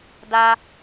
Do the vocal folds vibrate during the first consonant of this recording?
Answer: yes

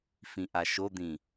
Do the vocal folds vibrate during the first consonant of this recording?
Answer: no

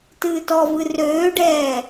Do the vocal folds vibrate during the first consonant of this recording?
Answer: no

